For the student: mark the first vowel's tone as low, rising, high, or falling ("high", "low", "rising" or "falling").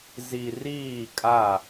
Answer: low